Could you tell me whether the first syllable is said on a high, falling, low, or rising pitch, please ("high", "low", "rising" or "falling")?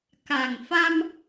low